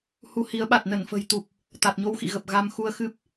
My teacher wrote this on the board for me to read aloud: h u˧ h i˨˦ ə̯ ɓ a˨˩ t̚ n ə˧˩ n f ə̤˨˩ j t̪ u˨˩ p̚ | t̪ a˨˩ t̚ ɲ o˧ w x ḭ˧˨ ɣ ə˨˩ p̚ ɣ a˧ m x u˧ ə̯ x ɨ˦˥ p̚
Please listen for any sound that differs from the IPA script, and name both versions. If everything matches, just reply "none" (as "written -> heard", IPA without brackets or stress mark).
none